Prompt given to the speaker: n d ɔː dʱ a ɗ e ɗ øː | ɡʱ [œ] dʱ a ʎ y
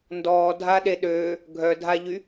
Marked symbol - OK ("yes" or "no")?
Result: yes